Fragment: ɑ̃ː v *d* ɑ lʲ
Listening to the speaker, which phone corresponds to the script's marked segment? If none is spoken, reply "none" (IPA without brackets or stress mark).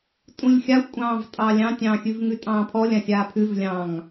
tʼ